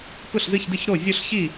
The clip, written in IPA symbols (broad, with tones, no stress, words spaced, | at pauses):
kʊ˥˩ɬzɨ˥˩çdɨ˥˩ç ɾo˥˩ zʲo˥˩ɬçi˥˩